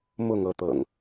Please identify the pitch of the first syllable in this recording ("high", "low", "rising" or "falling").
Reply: falling